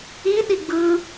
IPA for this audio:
i ɗ i ɡ͡b ɯ

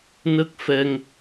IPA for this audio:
n ə˦˥ k̚ f ɛ˧ ŋ

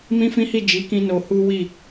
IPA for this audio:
m ĩ˦ f ĩ˦ h i˦˨ d͡ʒ i˨˦ k ĩ˧ n o˧ h u˦ w i˦˨

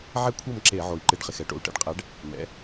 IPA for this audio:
ʕ ɛ˥ kʷʰ ɤ˥˧ m ǁ e˧˩˧ ʕ o˩ i̯ ǃ ɪ˧˩˧ ɖ χ ɪ˩ x ɛ˩˥ ʈ o̰˩ u̯ ʈ ɛ̰˥ ɖ qʼ ɛ˩˥ ɖ | m ɛ̰˩˥

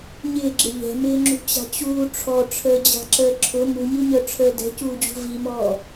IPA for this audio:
ɲ ɪː ɡ͡ǁ ɪ ʎ ɛ̤ m ɪː ŋ͡ǁ ṳ t͡ɕ a̤ t͡ɕ uː ʈ͡ʂʰ ɔ ʈ͡ʂʰ əː d͡ʑ a̤ ǁ əː ǁʰ ʊ m u ɲ u ɲ œ ʈ͡ʂʰ əː d ɛ̤ c uː d͡ʑ ṳ v i m ɔː

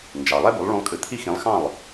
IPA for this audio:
n d͡ʒ ɑ˩ lˠ ɛ˥ b u˩˥ lˠ ɭ ũ˧ lˠ kʼ ɨ˩ t̪ʰ i˥ x ĩ˩˥ lˠ x ɑ̃˥˩ lˠ

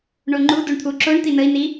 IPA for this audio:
ɳ o ŋ͡ǃ u d u ɳ t̪ʰ u ǁ o ɳ t̪ i n ə i̯ n i

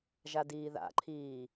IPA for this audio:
ʒ a d iː ð a̰ ǃʰ iː

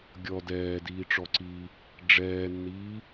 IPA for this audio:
ɡʲ ɔ d ɛː d iː ʈ͡ʂ ɔ ǀ iː | ɖ͡ʐ ɛː nː iː

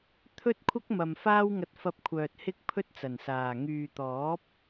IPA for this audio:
t̪ʰ ɵ˥ t̚ kʷʰ ɐ˥ k̚ m ɐ˨ m f aː˥ w ŋ ɐ˧ t̚ f ɐ˧ p̚ kʷʰ œː˨ t̚ h ɪ˥ k̚ pʰ ɵ˥ t̚ t͡s ɐ˨˩ n s aː˨˩ ŋ yː˨ t̪ ɔː˨˥ p̚

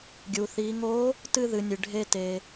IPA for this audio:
ɡʲ u˩ θ i˩˧ ŋ o˧˥ | t ɨ˥ ð ɨ˩˧ nʲ ɨ˩ ɖʱ e˧ t e˩

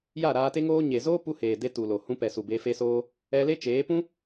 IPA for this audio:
j a˦˨ ɾ aː˧ t e˦ ŋ oː˦ ɲ e˨ z oː˦ p u˧ h eː˨ d e˧ t u˨ l o˨ h ũ˧ p ɛ˨ s u˨ b e˧ f e˦ s oː˦ | ɛ˧ l e˦ t͡ʃ eː˨˦ p ũ˦

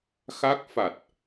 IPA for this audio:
x a˦˥ k̚ f a˨˩ t̚

